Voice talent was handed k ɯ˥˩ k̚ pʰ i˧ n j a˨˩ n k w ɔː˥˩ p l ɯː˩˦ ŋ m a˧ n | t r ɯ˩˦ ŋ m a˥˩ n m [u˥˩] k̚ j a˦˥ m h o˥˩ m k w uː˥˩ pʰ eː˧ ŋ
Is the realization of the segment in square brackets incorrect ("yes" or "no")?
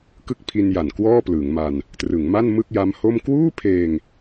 yes